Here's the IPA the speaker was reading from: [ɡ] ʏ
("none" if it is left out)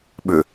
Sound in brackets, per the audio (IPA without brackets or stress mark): ɓ